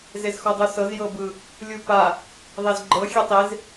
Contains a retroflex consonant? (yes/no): no